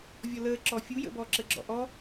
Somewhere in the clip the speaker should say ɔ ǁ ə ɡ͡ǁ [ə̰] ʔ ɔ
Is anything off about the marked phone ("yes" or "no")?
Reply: yes